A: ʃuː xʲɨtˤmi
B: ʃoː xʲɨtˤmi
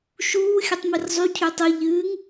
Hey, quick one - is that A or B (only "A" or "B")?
A